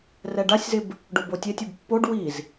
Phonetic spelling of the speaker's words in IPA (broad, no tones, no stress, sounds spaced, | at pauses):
r ɛ ɖ a sʲ z ɪ b | ɖ o b o tʲ e tʲ ɪ b pː o ɖ w i z